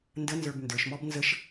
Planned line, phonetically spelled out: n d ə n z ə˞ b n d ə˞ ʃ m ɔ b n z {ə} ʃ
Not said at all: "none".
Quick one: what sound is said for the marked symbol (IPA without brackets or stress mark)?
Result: ə